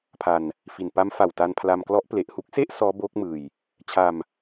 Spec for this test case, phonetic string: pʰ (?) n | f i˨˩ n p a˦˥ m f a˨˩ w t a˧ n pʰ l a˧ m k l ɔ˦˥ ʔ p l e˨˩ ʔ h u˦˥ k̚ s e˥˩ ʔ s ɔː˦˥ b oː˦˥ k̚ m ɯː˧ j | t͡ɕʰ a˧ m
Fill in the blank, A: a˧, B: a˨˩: A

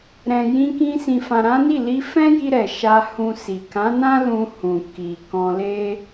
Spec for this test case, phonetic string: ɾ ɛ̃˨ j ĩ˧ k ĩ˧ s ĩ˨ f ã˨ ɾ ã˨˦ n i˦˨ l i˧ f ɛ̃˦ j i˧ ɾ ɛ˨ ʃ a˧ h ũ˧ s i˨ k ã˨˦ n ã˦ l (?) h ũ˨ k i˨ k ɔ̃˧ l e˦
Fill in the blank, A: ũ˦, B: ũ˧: B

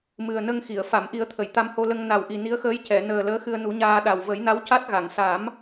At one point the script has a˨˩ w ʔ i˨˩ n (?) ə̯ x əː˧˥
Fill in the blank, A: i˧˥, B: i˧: A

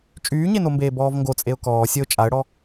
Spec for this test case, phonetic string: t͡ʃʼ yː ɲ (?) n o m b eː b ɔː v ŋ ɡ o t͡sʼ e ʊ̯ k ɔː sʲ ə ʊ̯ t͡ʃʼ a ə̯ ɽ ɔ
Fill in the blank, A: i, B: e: B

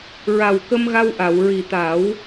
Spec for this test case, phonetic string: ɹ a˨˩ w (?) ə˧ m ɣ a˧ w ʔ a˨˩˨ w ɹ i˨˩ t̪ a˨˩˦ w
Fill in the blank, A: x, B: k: B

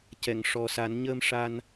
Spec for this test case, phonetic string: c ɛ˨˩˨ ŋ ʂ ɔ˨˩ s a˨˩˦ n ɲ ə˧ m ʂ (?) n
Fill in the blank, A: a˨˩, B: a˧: B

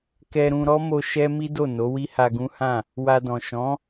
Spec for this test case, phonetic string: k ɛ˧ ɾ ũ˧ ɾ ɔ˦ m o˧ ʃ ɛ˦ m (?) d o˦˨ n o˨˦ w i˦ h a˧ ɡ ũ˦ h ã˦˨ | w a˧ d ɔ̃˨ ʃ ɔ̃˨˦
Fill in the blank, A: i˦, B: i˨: A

